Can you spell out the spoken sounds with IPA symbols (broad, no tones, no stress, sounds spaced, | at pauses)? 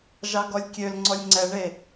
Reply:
ʒ ɑ ɡ ɔ lʲ kʲ ø l ŋ͡ǀ ɔ lʲ ŋ͡ǀ ɛ ɳ e